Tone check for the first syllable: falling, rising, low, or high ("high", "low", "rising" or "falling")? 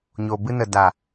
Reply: low